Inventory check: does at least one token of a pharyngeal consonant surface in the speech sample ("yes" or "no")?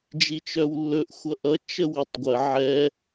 yes